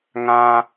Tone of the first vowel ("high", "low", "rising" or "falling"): low